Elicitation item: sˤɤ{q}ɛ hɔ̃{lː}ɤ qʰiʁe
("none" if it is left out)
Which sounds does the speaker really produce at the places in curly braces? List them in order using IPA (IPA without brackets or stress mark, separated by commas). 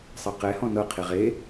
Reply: q, n